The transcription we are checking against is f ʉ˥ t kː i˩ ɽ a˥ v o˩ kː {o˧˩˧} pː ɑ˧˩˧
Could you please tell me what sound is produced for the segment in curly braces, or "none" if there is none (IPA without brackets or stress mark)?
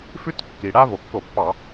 o˧˩˧